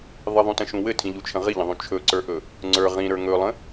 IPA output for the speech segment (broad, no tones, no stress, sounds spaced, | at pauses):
ðˤ ə ðˤ ũ t ə̃ ʃ ũ w ɘ tʰ ĩ ʎ u t͡ʃʰ ə̃ ʁ i ʎ ə̃ ðˤ ũ t͡ʃʰ ɵ ǀ ə˞ ʔ ɵ | ŋ͡ǀ ə˞ ʁ ĩ ɾ ə˞ ŋ ɵ lˠ ə̃